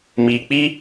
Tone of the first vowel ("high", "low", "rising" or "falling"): low